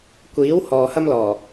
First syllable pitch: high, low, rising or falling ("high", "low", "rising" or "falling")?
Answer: rising